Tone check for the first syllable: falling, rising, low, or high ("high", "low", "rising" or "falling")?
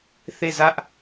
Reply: falling